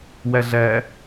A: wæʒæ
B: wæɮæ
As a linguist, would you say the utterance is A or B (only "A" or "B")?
B